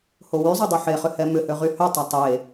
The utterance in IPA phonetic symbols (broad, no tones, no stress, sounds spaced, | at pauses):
h o w y zˤ ø dˤ u ħ e χ ʏ h ɛ m ʏ h ø ʁ y h ø tˤ ɐ tˤ e